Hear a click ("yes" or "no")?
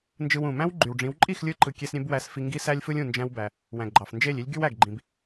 yes